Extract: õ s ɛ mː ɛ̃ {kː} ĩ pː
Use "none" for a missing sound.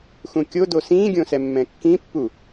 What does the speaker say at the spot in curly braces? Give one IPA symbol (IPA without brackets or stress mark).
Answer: kː